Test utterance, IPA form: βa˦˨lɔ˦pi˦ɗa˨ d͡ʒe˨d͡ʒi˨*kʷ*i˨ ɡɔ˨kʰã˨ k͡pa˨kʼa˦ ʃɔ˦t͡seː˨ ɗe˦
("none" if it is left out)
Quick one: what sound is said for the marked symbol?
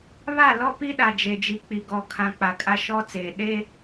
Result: k͡p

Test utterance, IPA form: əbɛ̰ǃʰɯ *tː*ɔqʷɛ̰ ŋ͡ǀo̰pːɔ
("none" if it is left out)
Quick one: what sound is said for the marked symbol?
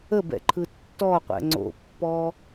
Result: tː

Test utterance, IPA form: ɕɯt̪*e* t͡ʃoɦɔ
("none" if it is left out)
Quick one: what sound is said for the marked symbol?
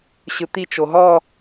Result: i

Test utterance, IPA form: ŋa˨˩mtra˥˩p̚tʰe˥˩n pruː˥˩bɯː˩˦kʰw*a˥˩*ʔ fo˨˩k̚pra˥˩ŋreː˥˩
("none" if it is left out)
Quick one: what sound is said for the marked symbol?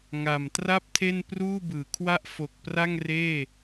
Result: a˥˩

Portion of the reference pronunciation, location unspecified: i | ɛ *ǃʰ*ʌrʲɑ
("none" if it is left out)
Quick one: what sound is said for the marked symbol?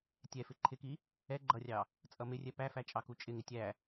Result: ɡ͡ǃ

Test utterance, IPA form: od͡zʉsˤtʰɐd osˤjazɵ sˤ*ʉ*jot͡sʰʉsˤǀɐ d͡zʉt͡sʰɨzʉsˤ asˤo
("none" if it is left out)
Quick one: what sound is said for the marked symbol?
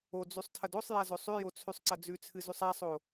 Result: ʉ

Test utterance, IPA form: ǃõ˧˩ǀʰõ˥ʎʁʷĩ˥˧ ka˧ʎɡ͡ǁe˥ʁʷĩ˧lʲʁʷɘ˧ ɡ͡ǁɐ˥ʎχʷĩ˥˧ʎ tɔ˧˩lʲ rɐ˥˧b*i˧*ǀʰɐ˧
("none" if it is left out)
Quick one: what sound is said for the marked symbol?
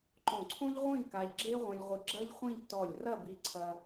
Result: i˧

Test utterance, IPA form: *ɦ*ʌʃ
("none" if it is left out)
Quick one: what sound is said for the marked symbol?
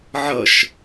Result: ʕ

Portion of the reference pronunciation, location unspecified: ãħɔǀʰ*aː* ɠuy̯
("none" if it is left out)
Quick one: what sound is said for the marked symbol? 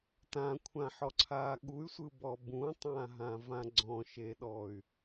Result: aː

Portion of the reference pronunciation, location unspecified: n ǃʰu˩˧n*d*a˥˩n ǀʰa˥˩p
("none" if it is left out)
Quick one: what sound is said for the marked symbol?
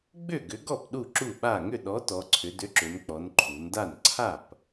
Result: d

